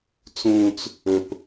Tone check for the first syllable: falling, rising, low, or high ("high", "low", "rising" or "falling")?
high